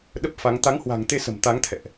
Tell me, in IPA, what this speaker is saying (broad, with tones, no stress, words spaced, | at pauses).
ɗə˦˥p̚fa˨˦ŋ t̪a˨˦ŋhwa̤˨˩ŋt̪e˧sə̤˨˩m t̪a˨˦ŋt̪ʰɛ̰˧˨ʔ